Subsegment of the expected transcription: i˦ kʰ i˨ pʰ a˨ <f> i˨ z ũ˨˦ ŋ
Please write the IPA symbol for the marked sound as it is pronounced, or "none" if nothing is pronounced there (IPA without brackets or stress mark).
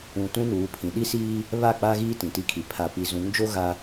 p